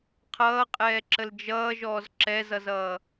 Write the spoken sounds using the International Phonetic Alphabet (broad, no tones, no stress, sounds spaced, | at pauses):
qʰ ʌː qʼ ɛː ǁ ə l d͡ʒ ʌː ʒ ɔː z ǁ ɛ z ʌ z ʌː